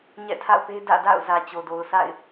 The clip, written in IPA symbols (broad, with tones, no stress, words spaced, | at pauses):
ɲɛ̰˦˨tʰa̰˦˨ʊ̯pe˦ dä̰˦˨da̰˦˨ʊ̯zä˨ t͡ɕo˨do˨ʊ̯sa̰˦˨ɪ̯